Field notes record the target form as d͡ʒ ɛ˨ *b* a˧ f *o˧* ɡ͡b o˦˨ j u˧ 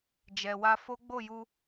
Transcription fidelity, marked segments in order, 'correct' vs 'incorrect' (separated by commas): incorrect, incorrect